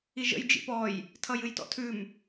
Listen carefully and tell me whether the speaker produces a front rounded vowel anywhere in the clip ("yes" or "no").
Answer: no